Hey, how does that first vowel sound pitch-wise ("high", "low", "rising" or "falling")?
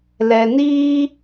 low